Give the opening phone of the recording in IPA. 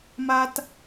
m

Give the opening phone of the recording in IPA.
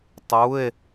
tˤ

